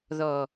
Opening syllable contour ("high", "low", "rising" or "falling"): low